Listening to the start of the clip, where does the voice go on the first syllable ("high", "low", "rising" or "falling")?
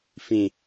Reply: low